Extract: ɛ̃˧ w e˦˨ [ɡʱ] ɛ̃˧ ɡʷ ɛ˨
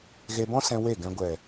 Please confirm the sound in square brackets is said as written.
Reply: no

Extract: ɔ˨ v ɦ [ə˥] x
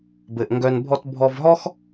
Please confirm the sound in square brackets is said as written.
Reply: no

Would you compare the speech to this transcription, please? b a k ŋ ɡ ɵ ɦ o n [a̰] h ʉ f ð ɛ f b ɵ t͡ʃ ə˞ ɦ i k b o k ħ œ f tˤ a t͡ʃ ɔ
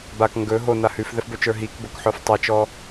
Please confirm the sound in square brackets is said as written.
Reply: no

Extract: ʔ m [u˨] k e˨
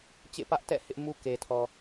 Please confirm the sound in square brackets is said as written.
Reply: no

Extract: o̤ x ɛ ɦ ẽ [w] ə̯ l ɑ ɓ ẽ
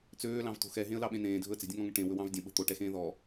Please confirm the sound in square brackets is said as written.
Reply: no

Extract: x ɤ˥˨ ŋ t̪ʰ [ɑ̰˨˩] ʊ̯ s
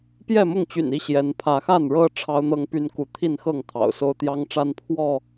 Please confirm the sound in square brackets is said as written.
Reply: yes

